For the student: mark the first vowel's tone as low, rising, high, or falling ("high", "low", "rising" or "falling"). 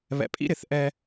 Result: low